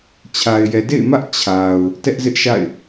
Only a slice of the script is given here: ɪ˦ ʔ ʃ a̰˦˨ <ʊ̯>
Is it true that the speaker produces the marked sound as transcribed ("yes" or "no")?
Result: no